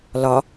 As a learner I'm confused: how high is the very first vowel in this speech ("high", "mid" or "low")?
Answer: low